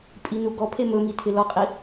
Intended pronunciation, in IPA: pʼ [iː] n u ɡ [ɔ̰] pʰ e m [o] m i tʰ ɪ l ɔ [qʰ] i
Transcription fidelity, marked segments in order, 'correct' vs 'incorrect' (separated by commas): incorrect, incorrect, incorrect, incorrect